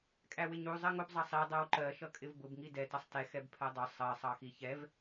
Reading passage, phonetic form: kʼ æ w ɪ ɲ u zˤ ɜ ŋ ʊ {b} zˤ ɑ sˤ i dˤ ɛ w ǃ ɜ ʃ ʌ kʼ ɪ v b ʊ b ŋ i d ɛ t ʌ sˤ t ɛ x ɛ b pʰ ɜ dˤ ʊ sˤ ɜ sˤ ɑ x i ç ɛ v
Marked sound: correct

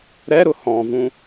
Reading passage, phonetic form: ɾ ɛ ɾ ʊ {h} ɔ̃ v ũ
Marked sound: correct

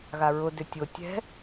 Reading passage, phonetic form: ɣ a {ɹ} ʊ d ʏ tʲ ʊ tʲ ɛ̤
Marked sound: correct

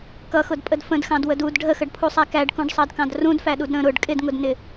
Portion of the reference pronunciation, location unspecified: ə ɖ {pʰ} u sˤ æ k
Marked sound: correct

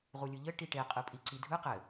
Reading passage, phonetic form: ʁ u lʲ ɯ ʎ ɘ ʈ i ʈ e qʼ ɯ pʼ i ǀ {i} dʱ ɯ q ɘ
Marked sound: correct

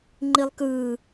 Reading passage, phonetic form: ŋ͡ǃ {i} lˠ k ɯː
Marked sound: correct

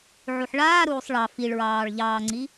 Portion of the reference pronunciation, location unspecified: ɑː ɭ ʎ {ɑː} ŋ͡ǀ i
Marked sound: correct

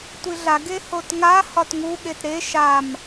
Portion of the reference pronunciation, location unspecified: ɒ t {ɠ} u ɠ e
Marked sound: incorrect: ŋ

